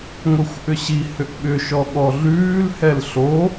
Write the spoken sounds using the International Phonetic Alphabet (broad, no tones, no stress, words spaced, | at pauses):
ŋʷɛxʷʔʏɕi hʏʔɓʏ ʃɔɠɔɮʉːl hɛlɬo